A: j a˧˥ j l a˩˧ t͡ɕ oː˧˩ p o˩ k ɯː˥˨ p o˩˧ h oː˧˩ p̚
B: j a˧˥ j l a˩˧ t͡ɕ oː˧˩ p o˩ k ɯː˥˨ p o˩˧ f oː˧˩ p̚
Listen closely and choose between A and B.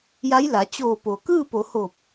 A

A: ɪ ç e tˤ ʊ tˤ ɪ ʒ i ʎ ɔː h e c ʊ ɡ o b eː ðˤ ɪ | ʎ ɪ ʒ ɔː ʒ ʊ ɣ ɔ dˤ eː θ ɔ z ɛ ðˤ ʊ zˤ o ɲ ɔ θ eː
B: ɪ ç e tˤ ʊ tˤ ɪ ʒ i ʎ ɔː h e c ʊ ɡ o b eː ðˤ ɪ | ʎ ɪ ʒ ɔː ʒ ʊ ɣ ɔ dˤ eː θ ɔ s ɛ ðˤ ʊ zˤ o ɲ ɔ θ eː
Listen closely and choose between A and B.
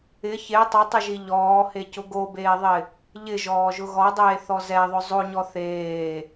A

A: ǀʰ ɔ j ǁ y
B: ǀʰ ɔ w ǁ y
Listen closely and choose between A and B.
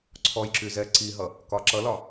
A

